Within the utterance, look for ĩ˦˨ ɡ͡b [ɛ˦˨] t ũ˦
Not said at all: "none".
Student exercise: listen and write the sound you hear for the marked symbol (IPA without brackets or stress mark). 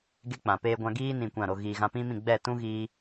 ɛ˦˨